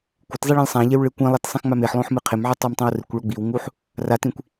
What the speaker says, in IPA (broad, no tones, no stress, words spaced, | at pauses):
kʷɪtzˤe ɭĩlʲsˤãʎew ɭekʷĩlˠet sˤĩxŋ͡mameħlˠõħ mɨqʰɪmʕɨ tˤomtˤĩwrɪkʷɭo ɡ͡biwŋuħ | ratĩkʷ